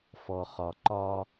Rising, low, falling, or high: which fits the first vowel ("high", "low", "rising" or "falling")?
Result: low